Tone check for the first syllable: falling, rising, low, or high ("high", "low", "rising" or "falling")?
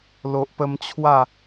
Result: low